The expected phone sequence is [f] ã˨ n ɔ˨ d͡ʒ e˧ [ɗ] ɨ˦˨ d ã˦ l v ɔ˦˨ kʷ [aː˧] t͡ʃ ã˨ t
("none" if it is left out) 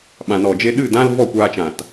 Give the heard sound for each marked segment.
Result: ɓ, ɗ, aː˧

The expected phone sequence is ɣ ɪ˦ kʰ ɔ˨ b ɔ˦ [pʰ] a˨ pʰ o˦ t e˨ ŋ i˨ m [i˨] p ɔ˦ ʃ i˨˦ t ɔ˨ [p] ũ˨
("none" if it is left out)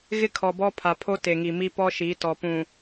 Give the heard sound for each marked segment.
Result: pʰ, i˦, p

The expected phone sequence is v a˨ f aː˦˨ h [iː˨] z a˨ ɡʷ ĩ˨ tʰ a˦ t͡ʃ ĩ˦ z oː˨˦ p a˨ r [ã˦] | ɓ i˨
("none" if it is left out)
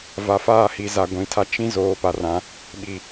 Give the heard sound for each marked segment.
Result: i˨, ã˨˦

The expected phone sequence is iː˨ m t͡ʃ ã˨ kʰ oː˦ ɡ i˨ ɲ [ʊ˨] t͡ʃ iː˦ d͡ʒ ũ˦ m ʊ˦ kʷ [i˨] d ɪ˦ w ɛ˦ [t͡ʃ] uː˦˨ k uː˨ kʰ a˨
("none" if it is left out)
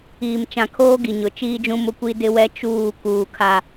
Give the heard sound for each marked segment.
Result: ʊ˨˦, i˦, t͡ʃ

